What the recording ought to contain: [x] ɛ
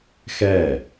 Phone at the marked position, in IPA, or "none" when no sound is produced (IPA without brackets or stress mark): x